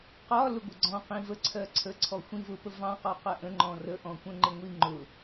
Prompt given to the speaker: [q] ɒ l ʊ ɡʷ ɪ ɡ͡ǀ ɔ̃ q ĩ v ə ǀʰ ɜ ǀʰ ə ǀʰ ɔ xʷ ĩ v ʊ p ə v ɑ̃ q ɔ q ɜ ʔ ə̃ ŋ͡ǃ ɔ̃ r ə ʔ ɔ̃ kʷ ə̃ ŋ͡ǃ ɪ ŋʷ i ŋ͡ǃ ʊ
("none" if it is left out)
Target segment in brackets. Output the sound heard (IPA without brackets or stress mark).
q